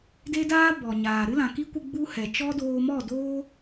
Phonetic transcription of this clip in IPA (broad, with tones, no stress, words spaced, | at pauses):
de˦daː˦ bɔ˨ɲaː˨ ɾɨ˦lã˨ki˦kʷɨ˧ ɡ͡bu˦ hɛ˨ t͡ʃɔ˦doː˧mɔ˦˨ doː˦